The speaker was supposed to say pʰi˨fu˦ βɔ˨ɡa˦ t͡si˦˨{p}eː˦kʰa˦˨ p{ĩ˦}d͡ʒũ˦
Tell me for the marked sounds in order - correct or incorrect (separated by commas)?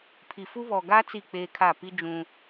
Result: incorrect, incorrect